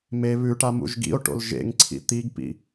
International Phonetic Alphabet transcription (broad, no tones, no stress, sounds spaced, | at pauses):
m e β ʉ ʈ a m ṵ ʒ ɡ ḭ o̯ ʈ o̰ l ʒ ḛ ŋ ǀʰ ḭ t̪ i ɡ p ḭ